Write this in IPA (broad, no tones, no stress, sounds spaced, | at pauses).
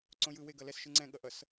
ǀ õ j ɯ w e ɡ ʌ l ɛ s ʃ ɯ ŋ͡ǀ ɛ̃ ɠ ʌ ʔ ʌ s